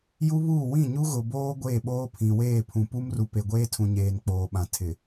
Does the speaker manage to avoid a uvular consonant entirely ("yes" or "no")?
yes